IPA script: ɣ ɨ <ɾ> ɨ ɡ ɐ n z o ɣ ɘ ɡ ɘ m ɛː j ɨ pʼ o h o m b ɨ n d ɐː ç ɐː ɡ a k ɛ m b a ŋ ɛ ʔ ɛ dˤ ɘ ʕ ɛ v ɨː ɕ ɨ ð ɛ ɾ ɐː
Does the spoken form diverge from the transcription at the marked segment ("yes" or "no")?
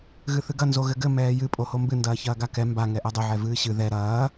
yes